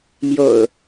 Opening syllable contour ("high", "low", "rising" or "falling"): low